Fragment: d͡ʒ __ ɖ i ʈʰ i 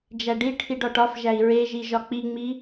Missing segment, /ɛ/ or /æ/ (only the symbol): æ